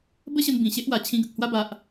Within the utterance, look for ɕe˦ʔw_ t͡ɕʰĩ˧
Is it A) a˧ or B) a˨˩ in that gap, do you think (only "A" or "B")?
B